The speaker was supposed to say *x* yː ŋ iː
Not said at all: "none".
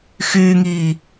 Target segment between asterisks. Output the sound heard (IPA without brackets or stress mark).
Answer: x